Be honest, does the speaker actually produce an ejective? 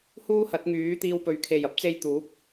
no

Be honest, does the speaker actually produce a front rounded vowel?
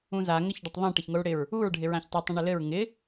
no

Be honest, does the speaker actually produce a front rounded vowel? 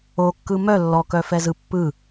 yes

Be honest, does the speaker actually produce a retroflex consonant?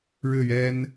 yes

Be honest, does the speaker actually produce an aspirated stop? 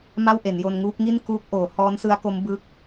no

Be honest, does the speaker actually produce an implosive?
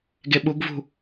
yes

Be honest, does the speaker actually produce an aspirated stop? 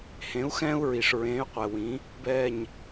no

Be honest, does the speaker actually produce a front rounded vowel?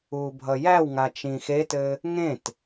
no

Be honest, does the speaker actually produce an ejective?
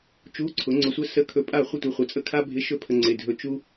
yes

